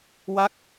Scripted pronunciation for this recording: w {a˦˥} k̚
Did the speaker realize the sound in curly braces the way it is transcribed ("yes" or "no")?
no